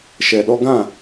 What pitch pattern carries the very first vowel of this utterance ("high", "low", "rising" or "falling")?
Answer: low